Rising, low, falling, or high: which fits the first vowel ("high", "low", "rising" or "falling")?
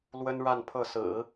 high